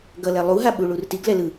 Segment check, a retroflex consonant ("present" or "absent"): present